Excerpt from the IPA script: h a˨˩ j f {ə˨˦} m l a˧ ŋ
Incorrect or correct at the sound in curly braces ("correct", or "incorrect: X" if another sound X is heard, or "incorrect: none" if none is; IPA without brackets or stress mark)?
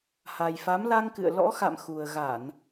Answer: incorrect: a˨˦